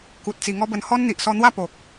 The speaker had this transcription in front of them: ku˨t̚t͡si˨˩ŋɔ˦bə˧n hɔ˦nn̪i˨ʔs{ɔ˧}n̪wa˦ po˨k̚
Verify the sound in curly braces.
correct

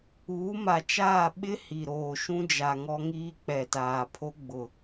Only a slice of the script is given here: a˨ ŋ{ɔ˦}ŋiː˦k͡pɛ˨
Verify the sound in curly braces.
correct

